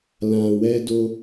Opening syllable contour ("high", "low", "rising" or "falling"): low